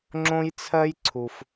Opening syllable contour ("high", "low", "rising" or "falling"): high